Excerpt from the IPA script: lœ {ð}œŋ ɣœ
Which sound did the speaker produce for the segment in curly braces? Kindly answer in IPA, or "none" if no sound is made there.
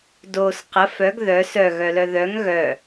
ð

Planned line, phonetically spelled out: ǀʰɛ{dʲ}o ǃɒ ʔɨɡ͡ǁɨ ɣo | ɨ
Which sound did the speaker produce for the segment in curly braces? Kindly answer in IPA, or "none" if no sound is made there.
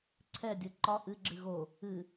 dʲ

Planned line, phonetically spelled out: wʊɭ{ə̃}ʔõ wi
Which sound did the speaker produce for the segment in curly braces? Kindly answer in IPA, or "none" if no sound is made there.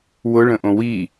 ə̃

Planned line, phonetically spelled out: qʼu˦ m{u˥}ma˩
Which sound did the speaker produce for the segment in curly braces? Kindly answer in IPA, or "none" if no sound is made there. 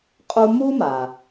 u˥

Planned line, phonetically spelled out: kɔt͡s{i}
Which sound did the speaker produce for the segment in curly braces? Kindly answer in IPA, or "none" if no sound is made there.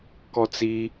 i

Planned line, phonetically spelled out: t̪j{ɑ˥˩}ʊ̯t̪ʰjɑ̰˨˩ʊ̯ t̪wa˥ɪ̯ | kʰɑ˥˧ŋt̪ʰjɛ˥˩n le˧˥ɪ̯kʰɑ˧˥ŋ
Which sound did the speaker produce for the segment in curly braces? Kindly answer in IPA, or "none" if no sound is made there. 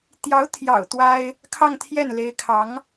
ɑ˧˥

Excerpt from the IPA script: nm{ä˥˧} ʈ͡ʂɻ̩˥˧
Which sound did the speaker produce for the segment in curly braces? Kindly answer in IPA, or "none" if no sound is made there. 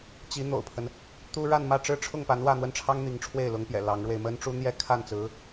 ä˥˧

